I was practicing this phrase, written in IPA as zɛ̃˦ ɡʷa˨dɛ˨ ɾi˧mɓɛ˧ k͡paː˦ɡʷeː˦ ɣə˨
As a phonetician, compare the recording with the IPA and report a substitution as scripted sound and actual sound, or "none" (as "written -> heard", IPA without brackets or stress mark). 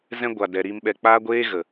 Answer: none